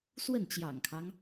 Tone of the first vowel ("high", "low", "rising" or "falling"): falling